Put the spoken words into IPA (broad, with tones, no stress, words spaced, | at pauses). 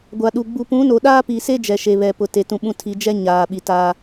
ɡʷa˨ɗu˨ ɡ͡bu˨pũ˨˦no˨ ɗaː˦pi˨se˦ d͡ʒɛ˨ʃe˨ βɛ˨pʊ˨ te˨tũ˨ɓũ˦˨tʰi˨˦ d͡ʒɛ˦ ɲaː˨ɓi˨ taː˦